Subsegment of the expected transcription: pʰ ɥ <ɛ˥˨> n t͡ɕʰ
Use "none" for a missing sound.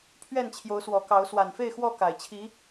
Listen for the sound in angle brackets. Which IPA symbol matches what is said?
ɛ˥˨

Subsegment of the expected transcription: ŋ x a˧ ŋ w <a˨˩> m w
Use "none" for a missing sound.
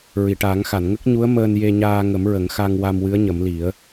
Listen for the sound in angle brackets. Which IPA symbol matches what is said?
a˧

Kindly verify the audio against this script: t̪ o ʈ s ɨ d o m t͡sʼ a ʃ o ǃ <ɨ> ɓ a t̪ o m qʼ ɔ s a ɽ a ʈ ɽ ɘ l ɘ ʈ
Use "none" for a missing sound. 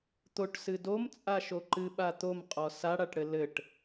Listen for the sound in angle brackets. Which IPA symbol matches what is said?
ɨ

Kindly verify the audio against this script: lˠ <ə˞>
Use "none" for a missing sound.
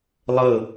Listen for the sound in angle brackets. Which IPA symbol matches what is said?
ɤ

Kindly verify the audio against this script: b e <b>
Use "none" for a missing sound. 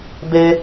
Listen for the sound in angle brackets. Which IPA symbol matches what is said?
none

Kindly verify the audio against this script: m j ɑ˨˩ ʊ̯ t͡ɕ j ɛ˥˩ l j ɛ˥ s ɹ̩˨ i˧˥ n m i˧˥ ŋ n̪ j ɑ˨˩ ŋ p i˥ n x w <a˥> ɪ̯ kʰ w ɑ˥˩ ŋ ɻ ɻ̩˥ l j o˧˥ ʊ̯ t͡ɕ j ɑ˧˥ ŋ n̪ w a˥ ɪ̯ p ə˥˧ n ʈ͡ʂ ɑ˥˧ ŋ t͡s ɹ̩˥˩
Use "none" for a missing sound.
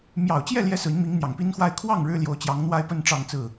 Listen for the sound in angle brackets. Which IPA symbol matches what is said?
a˥˧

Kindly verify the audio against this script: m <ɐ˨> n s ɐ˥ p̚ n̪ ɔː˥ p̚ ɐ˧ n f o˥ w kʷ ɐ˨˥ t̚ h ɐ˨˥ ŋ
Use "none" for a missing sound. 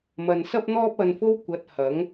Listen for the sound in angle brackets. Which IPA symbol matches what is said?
ɐ˨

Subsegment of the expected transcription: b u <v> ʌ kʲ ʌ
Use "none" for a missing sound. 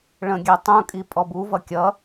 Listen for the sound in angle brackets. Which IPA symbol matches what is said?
v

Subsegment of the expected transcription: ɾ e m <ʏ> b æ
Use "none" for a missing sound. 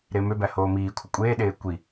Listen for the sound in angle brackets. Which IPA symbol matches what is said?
ʏ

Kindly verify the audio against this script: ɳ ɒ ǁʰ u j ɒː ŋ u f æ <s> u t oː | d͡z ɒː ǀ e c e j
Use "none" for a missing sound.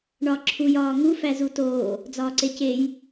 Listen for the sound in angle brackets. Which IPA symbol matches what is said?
z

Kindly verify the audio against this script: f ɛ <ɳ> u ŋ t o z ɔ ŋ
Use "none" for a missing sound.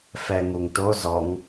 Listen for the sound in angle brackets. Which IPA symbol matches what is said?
ŋ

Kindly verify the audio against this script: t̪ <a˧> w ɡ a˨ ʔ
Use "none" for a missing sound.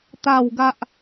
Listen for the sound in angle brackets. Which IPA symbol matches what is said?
a˨˩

